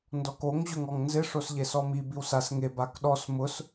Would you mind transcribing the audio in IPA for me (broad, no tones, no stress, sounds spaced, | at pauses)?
n d ɔ k o ŋ ʑ ʊ ŋ ɔ ŋ n z ɪ ʂ o s ʎ e s ɔ m i b i w s a s ŋ e b a k ɗ ɔ s m ʊ s